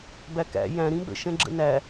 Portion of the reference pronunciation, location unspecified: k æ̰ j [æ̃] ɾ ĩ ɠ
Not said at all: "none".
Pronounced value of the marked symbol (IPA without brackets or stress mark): æ̃